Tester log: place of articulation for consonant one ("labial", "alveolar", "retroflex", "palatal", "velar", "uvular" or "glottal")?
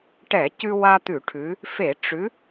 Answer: retroflex